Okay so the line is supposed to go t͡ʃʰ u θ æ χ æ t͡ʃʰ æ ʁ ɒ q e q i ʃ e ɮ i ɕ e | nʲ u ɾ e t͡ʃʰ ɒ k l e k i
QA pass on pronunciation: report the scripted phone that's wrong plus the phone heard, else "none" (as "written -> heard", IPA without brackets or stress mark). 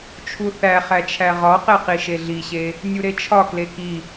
none